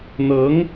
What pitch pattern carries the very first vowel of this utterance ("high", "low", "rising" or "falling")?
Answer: rising